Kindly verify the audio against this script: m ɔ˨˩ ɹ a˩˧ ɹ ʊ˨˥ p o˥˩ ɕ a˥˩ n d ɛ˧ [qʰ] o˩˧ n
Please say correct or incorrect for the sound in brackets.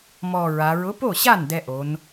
incorrect